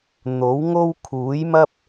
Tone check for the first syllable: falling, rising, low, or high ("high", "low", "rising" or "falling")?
rising